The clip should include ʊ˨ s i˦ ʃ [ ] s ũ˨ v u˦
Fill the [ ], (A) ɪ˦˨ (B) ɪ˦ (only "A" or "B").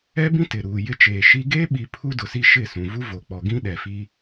A